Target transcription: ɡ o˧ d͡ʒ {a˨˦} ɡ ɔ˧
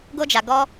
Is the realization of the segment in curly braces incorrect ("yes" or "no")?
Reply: yes